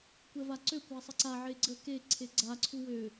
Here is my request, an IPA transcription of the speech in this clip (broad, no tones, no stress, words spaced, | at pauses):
kʷɛvaǀø kʷasˤəǀa ʕeɡ͡ǀə ke ǀʰeɡ͡ǀa ǀʰuwø